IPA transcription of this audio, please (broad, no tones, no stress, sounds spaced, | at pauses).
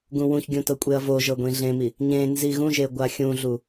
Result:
ɡ ũ w ũ ç ɡʲ ũ t ɤ kʷʼ e ɐ̯ v o ʒ ɤ ɡʷ ĩ ɮ ẽ m i | ɲ ẽ n z i ɣ ũ ʒ e ɡʷ a xʲ ũ ɮ u